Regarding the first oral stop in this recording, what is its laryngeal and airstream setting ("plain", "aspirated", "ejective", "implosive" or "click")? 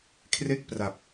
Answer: aspirated